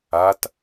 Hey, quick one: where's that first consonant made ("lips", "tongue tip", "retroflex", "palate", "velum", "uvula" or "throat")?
tongue tip